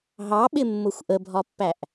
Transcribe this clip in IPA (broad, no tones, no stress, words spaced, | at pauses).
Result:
ɦɑɓɪmːʊxʷ ʔəbʱɒpːæʔ